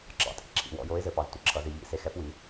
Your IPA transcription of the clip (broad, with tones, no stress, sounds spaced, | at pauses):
ǁ ɑ̰˨˥ tʼ ḭ˨˥ ǁʰ ḭ˩˧ w ɔ̰˩˧ j o˨˥ ɪ̯ z ɘ˩˧ p ɑ˩˧ z tʷ ɘ˨˥ ǁʰ ʌ˩˧ z i˩˧ ʎ ḭ˩˧ s e˨˥ x ɛ˨˥ p w i˩˧